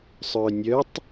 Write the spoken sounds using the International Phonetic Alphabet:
sˤ œ nʲ œ tˤ

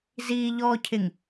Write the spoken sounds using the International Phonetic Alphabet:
z iː ʎ ɔː cʰ ɪ ŋ

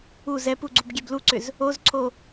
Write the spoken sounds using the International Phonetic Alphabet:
u z ɛ p u ɡ͡ǀ u b ɡʲ ɛ b l u ǀ ʏ z | o z ǀʰ o

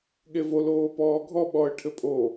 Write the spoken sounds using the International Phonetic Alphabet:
ɠ e v o l oː p ɔː ɡʱ ɔ ɓ ɔ ə̯ ʈʰ ɘ pʼ o

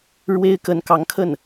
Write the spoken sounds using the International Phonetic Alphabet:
ɻ w e˥ ɪ̯ k ə˧˥ n k ɑ˧˥ ŋ kʰ ə˥˩ n

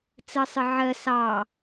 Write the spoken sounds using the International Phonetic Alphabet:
t͡s ɜ sˤ ɪ ʕ ɜ s ɑ

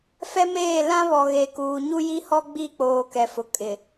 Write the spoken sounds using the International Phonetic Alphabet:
f ɛ˦ m eː˦˨ l ã˦ β ɔ˨ ɣ e˨ k uː˨ ɲ u˦ j i˦ h ɔ˦ ɡ͡b i˦˨ k͡p oː˨ k ɛ˨ f ʊ˨ kʼ ɪ˨

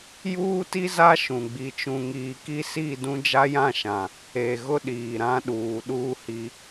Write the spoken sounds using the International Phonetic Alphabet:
j uː˦ t i˦ z a˦ ʃ ũ˨ ɡ͡b i˦ t͡ʃ ũ˦ ŋ iː˦ k i˦ s i˦˨ d ũ˦ d͡ʒ a˦ j ã˦˨ ʃ ã˨ | e˨ ɣ ʊ˦ ɗ iː˨ ɾ ã˦ ɗ uː˨ ɗ uː˦ h i˦

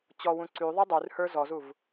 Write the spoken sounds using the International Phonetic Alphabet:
t͡ɕ ɔ w ũ ǀ y ðˤ ɵ dˤ y r h ə˞ z ɔ z u v

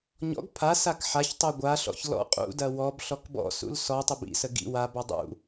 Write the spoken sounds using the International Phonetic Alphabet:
ɲ ɔ̰ ɡ pʰ a s a k ħ a ç tˤ u ɡʷ a ɬ ɔ̰ ç l ɔ̰ qʼ ṵ d ɐ w ɔ b ɬ ɔ k b ɔ̰ s ṵ l s ɔ tˤ ə b ḭ s ə ɡ ḭ w a b ɔ dˤ ṵ

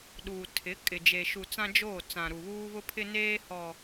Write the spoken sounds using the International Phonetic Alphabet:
ɗ uː˨ tʰ ɪ˨˦ kʼ ɪ˨ d͡ʒ e˨ ʃ u˨ t͡s ã˦ d͡ʒ oː˦˨ t͡s ã˨ ɾ u˨ β uː˦ β ʊ˦ pʰ ɪ˦ n eː˦ h ɔ˨

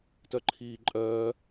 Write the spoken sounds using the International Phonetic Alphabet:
t œ ǃʰ iː ǃʼ œː

